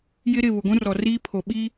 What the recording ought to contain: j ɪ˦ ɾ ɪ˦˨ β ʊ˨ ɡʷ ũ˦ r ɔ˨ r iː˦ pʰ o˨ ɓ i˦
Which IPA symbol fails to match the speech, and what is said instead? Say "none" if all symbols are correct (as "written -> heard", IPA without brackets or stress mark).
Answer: none